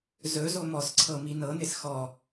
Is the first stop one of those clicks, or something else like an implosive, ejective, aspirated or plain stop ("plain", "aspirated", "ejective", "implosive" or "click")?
click